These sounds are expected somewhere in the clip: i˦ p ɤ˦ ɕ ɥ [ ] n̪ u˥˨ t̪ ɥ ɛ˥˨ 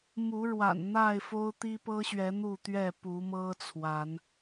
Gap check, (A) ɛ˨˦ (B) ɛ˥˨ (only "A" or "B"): A